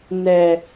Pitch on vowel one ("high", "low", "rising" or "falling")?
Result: low